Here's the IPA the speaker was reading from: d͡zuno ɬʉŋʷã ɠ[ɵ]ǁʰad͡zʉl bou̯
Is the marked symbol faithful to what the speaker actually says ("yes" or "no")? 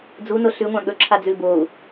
yes